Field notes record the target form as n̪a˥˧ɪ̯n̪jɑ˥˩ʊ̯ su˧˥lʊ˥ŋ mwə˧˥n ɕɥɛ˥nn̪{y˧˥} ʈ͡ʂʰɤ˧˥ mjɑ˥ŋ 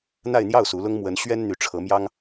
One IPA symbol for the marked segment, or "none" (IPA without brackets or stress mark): y˧˥